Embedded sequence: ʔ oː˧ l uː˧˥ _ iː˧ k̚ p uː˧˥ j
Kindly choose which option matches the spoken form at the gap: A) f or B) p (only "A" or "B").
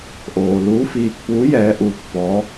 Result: A